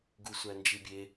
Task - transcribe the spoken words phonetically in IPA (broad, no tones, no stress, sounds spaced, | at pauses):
ɡ u sʷ æ n d͡ʒ i bʲ e